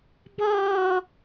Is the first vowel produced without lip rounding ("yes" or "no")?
no